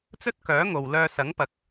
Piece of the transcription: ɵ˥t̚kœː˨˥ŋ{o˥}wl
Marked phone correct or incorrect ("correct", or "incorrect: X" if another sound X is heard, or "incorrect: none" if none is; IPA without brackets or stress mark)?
incorrect: o˨